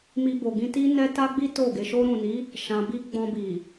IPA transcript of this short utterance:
mi˧bo˨ɡĩ˧ti˦ nɛ˦ta˦ɡ͡bi˦ to˦˨ ɡe˨ʃo˧ɾũ˨ni˨˦ | ʃã˧bi˦ ɡ͡bɔ̃˧bi˨

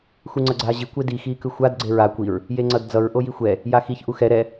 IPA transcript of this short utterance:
xuŋ͡ǀʌɡ͡ǀaːʑi kʷedi xiːkɯxʷad ɡ͡ǀeɹa kʷiɹ | jeŋ͡ǀʌdd͡zʌɹ ʔojixʷɛ | jaxiç ʔuxɛ ɾɛ

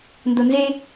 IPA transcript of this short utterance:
ndonze

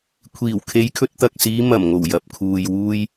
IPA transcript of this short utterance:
kʷʰiː˨˩wkʰe˨˧jkʰɵ˧t̚ t̪ɐ˨k̚siː˨˧ mɐ˨˩mŋo˨˩w jɐ˨p̚kʰuː˨jwuː˧j

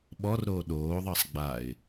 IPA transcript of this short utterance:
ɓɔrɾoː ɗoːðˤɑsˤ ɡ͡baɪ̯

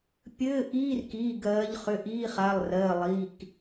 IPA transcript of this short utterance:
pʲɘː˧˥˧ʔiː˧˥˧rkiː˩˧˩ ɡɜː˨˦ʎ χʏ˩˧˩ʔiː˧˥˧χa˩˧˩lˠ rɜː˩˧˩lˠiː˩˧˩k

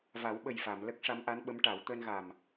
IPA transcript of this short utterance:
va˨˩˦wɓə˨˩jfa˨˩˨m lə˦˥k̚ʂa˧˥mʔa˧˥n ɓə˧˥mʈa˨˩˦w t̪əː˧nɣa˨˩m

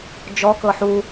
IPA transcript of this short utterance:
d͡ʒɔkɤ ħu

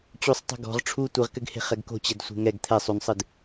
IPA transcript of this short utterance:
t͡ɕusˤ tˤɛ̤ɡɔ̤ʁ ʈ͡ʂʰu tʷɨʁkɘɡhe̤ χɛɡko̤t͡ɕɛd sʷe̤ŋɛɡ t̪ʰɛ sˤunsˤɨd

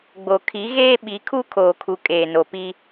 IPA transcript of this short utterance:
ɡ͡bo˨kʰi˨˦ɣeː˦ ɓi˨˦kʰu˦kʰoː˨kʰu˨ kʼeː˨no˨pi˦

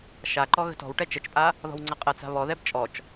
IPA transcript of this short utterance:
ʃaǃɔ ɣə̤tɔ̤wʈɛ t͡ʃət͡ʃpʼa | ðɔ̤wŋ͡ǀɐqʼɐt͡sa̤ βɔðɛb t͡ʃʼɔt͡ʃ

